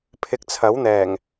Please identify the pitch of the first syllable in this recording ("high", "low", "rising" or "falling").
low